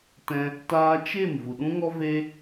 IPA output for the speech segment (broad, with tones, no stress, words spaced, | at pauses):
tɛ̃˧ | taː˧t͡ʃe˦˨m vu˨ɗũ˦ŋɔ˦ ve˦